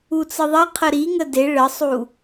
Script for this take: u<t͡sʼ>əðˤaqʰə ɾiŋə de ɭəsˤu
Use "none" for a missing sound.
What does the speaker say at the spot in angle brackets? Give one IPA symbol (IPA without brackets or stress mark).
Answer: t͡s